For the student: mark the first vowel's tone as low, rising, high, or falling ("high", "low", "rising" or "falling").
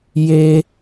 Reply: high